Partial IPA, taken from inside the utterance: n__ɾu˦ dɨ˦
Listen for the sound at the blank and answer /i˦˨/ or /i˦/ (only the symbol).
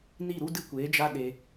i˦˨